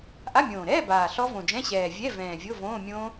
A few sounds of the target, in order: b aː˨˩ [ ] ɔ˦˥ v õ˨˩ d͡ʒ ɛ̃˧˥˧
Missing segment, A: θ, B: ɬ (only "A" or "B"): B